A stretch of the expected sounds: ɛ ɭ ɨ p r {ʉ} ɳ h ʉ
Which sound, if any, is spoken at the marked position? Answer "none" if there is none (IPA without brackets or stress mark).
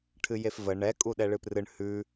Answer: ɨ